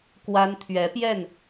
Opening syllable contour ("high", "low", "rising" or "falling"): high